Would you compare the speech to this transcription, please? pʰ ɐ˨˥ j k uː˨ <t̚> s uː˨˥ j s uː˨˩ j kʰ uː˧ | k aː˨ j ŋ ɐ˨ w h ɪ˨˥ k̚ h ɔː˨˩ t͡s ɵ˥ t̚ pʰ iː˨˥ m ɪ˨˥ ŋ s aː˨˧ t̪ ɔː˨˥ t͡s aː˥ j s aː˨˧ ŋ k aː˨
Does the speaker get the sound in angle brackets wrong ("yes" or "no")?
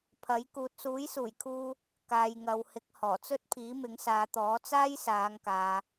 no